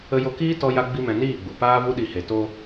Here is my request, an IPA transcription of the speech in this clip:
ə˧jo˧kiː˦ tɔ˦ja˦ ɡ͡bi˦mɛ̃˧ niː˦˨ɡ͡bu˨ paː˦vu˦ɗi˧ he˨to˧

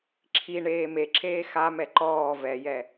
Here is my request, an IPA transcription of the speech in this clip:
ǁʰi ɳeːmeǁʰeː xamɛ ǃɔː vɛjɛ

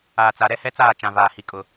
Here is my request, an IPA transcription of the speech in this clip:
aː˨t͡sa˨ ɾɛ˦hɛ˦t͡saː˦˨ t͡ʃã˨vaː˨hi˨ kʼʊ˨

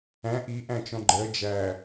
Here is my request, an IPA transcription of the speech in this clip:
æ̃ ʔiʔæ̃t͡ʃɔ̃ ɡ͡ǃɜ d͡ʒæ

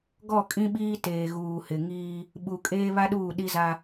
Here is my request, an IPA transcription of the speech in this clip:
ɡɔ˦˨kʼĩ˦ɓiː˦ teː˨ɣuː˨hɪ˨ŋiː˦ | ɓu˨kʼeː˦ βa˦ ɗuː˦˨ɗi˦za˦

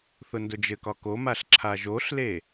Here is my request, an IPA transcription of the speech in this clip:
θʊndʊd͡ʒɘkɒ komaɬ ǁʰaʒoɬle

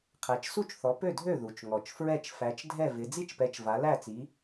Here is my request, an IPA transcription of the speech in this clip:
qʰæ˨˦t͡ʃsu˥˨t͡ʃθɔ˨˦ pø˥˨dʱø˥˨ ðu˨˩t͡ʃŋɔ˨˩t͡ʃfɹɛ˥˨t͡ʃ fæ˨˦t͡ʃdʱɛ˥˨vɪ˨˦ d͡zi˥˨t͡ʃpɛ˨˦t͡ʃ va˨˦læ˥˨t͡si˨˦

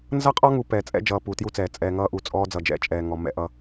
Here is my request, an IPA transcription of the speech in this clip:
nzʌ˦qʼɔ˦ŋu˨ pɛː˨t͡sʼɛ̰˦d͡ʒʌː˨ puː˨tju˦t͡sɛː˨ t͡sʼɛː˨ŋʌː˦ʔu˨t͡sʼɔː˦ d͡zʌ˨d͡ʒɛ̰˦˨t͡ʃʼɛː˨ ŋɔ˨ mɛ̰˦ʔʌ˦

